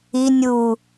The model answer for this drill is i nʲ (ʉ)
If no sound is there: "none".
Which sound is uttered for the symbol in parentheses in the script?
u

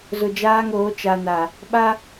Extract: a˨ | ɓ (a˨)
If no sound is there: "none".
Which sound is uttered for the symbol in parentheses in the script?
a˦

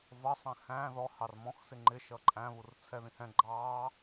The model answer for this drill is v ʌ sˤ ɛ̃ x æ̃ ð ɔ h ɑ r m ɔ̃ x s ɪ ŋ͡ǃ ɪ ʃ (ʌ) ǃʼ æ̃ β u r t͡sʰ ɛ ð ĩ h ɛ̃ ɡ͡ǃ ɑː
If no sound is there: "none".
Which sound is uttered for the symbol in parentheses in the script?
ʌ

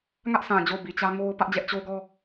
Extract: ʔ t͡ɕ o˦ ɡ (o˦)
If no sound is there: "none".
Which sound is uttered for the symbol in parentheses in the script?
ɔ˦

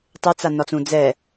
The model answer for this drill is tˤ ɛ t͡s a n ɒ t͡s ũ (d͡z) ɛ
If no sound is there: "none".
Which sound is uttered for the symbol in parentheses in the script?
d͡z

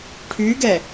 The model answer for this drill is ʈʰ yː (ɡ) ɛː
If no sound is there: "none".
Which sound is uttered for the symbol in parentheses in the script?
ɡ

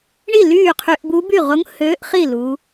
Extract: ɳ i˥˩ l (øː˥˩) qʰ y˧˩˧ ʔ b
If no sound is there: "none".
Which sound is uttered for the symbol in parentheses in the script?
yː˥˩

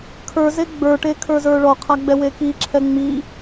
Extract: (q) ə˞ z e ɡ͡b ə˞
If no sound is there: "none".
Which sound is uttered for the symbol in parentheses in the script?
kʰ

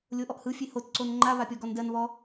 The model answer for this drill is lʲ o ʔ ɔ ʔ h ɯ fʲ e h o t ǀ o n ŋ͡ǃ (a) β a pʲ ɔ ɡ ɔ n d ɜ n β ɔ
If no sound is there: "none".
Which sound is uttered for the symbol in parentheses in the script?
a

